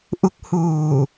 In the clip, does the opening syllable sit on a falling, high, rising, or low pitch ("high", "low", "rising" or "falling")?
rising